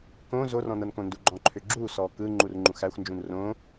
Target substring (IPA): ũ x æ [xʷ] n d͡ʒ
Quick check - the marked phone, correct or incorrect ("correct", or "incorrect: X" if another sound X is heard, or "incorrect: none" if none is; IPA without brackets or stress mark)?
correct